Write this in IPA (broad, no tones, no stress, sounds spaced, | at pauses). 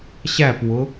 ɕ æ p w ʊ